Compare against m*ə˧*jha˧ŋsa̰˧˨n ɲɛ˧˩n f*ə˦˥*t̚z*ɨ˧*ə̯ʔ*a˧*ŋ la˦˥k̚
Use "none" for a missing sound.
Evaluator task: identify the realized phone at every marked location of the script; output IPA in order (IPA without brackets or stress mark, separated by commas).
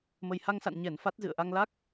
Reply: ə˨˩, a˦˥, ɨ̰˧˨, a˧